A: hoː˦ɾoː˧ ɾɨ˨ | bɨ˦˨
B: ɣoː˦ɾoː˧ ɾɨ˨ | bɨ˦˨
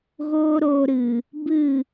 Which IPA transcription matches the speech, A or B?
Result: B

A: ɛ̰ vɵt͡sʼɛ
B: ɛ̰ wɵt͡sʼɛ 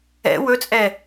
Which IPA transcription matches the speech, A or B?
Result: B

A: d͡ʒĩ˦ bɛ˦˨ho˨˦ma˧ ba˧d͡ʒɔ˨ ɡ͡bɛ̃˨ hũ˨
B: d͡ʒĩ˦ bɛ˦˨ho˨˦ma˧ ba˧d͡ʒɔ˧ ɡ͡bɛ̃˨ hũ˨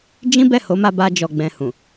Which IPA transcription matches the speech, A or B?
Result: A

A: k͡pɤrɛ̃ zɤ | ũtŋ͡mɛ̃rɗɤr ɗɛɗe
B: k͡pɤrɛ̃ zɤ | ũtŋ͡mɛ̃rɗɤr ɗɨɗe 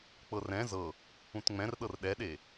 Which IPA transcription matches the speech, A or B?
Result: A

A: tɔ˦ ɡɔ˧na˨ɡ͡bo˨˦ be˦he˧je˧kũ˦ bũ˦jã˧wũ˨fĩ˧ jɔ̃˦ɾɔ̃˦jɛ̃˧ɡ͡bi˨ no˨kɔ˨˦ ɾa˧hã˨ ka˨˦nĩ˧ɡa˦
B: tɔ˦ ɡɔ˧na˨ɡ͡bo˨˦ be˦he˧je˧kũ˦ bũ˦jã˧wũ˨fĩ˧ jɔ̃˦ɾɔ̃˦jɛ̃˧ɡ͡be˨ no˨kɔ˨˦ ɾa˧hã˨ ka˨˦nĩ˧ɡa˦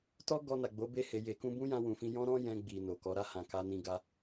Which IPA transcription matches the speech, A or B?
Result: A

